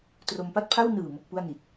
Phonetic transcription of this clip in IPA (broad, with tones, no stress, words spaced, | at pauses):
tro˧mpa˥˩t̚pʰa˥˩w nɯː˨˩ mo˥˩k̚pu˥˩a̯ni˨˩t̚